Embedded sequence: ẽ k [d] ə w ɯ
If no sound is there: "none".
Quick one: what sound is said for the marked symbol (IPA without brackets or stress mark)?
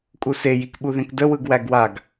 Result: d